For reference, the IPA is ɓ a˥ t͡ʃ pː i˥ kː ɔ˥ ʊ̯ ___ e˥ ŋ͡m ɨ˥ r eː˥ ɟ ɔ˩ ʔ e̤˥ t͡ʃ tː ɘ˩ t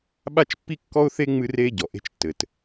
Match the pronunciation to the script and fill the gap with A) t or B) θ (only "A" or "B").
B